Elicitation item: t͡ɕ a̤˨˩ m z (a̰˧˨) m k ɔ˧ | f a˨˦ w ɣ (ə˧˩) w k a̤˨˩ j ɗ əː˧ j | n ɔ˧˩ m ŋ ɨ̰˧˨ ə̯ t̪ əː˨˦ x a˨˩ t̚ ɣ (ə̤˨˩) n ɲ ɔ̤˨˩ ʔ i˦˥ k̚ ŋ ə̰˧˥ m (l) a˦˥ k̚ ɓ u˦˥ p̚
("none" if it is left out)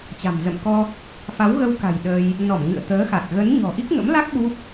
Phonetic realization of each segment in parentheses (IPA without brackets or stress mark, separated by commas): ə̰˧˨, ə˧, ə˨˦, l